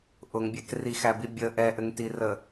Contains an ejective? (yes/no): no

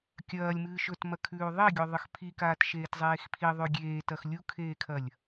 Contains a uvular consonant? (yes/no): no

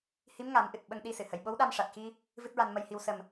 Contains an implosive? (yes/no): yes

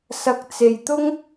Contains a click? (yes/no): no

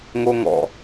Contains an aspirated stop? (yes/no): no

